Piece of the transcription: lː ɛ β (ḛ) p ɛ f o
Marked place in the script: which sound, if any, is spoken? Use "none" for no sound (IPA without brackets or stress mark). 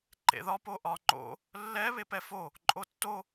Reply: e